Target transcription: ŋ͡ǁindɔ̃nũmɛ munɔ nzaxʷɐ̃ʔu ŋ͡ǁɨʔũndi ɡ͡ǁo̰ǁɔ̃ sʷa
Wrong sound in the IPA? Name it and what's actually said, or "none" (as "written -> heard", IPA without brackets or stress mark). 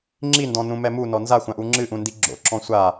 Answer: ɐ̃ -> ã